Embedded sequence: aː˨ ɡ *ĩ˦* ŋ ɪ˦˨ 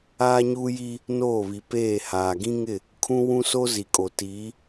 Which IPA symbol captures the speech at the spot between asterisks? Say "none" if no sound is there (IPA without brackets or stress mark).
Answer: ĩ˦